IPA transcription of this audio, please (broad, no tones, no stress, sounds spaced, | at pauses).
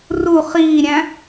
r u χ iː ɾʲ æ̃